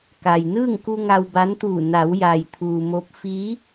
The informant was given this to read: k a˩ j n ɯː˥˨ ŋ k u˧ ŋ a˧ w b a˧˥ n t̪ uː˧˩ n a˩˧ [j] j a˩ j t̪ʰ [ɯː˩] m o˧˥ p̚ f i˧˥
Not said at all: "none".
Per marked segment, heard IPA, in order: w, uː˩

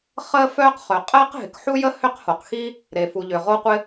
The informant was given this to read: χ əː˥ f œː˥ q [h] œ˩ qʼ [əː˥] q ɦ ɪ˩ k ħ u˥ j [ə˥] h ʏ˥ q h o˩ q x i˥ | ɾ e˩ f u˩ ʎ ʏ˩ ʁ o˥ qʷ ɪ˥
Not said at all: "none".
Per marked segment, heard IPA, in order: χ, əː˥, ə˥

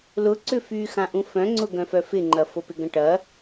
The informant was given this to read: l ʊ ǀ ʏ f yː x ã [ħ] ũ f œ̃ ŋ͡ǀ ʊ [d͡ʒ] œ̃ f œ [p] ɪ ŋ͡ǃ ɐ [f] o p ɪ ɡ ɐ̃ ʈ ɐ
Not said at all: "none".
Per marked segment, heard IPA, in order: ʔ, ɡ, f, f

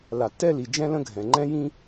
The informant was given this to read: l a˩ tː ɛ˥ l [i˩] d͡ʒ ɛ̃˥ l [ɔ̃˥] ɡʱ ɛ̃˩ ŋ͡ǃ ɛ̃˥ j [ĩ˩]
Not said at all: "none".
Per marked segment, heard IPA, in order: i˩, ə̃˥, ĩ˥

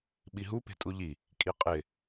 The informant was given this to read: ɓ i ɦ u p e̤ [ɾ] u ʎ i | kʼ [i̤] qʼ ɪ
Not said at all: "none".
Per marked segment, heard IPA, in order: tʼ, i

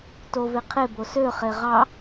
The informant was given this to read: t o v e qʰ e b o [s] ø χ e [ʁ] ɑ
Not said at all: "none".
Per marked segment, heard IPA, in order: s, ʁ

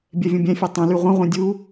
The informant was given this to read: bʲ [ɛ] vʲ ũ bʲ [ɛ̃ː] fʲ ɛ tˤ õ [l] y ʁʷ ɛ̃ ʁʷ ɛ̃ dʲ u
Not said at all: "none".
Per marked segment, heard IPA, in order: ɛ, ɛ̃, l

